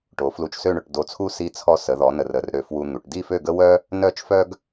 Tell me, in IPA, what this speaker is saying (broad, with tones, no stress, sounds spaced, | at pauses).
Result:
ʈ o˩˧ f l u˧˩ t͡ʃ s ø˥˧ ɳ ɵ˩˧ ʈ d o˧˩ t͡sʰ u˥ s i˧ t͡sʰ ɔ˧ s ə˩˧ ð ɔ˩˧ n ə˧ r ə˧ r ɾ ø˧ f w u˧ n̪ u˩˧ ʈ d i˥˧ f ø˥˧ ɡ ə˥ w œ˥ | n œ˥˧ t͡ʃ f œ˥ ɡ